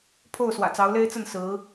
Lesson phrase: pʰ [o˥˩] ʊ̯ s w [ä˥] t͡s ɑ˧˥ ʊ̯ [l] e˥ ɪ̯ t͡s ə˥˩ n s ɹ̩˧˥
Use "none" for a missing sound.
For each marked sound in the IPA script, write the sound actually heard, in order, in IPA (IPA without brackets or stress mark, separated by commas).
o˥˩, ä̰˨˩, l